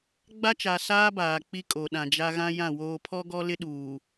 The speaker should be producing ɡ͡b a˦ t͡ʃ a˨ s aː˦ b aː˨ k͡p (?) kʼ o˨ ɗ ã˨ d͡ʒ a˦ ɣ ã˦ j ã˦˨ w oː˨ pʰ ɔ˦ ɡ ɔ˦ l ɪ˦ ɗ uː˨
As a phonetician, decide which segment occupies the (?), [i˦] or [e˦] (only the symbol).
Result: i˦